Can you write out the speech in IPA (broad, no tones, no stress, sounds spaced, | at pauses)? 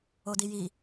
o d i j i